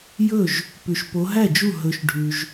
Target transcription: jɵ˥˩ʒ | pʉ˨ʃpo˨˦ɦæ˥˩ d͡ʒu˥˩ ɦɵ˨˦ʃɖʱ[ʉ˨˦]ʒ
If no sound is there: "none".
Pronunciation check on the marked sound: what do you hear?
ʉ˨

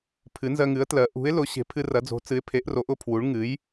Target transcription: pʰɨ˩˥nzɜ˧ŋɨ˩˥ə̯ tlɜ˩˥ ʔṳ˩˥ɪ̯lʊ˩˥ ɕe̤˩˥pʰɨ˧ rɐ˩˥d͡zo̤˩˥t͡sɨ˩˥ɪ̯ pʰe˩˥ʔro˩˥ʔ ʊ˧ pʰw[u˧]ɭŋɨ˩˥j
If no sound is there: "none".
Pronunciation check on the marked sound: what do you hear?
u˩˥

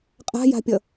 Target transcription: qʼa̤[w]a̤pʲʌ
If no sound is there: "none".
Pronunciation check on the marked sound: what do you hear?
j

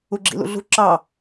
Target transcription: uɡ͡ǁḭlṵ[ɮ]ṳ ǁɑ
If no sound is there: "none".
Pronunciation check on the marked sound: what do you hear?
ɮ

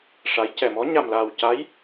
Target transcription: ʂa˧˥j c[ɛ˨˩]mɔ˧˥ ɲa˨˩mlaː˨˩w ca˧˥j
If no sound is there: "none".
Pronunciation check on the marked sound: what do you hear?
ɛ˨˩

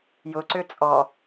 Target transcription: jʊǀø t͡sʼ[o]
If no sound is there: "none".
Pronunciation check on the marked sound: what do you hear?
ɔ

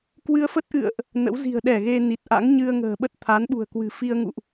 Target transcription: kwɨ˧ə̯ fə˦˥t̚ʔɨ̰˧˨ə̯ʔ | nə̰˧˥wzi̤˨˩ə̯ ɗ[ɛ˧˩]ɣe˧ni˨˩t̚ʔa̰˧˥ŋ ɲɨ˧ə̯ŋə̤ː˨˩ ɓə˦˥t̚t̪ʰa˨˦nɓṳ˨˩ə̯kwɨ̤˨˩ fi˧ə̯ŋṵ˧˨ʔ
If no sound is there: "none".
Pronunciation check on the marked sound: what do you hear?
ɛ˧˩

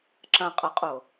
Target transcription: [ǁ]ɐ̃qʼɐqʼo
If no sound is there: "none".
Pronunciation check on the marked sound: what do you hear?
ǁ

